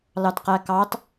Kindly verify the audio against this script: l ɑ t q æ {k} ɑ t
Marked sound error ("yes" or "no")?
no